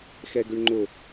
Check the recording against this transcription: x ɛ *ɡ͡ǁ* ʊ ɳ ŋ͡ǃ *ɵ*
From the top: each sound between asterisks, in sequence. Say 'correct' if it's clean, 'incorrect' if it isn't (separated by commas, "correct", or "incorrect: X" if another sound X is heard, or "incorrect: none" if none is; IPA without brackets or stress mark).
incorrect: ɡ, incorrect: ʊ